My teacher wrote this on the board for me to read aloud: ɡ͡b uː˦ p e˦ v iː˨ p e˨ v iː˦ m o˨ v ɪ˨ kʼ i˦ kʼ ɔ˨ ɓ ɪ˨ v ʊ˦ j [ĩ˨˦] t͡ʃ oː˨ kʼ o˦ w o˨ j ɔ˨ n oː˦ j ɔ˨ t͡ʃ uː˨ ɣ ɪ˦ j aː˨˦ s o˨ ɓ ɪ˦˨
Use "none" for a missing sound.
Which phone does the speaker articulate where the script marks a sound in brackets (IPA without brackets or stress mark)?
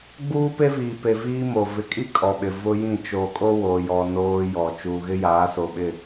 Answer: ĩ˦˨